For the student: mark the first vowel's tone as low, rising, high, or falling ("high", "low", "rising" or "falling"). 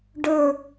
falling